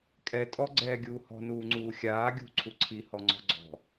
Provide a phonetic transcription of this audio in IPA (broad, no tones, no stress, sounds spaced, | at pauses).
kʼ ɛ tʼ ɔ ɡ͡ǀ ɛː ɡʲ uː h ɔ̤ n uː ŋ͡ǀ uː xʲ aː ɡʲ ṳ ǀʰ u ǀʰ i h ɔ ŋ͡ǀ ɔ̤ ɡ͡ǀ ɔ̤